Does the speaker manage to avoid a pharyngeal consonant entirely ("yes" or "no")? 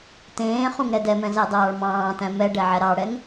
no